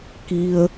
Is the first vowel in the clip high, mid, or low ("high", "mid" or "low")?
high